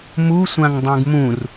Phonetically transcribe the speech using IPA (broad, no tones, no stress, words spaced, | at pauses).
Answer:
musʷãŋ dˤũɡmũr